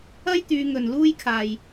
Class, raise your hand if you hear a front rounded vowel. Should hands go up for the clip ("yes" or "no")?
yes